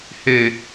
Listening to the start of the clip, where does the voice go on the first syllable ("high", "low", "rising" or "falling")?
low